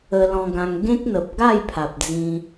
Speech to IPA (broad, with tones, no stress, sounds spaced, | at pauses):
ə˧ l ɔ̃˧ ɡ ã˧ ŋ ɡ ẽ˦ k̚ n̪ ə˨ p̚ ɡ a˥˧ j pʰ a˨ p̚ d͡z ĩ˧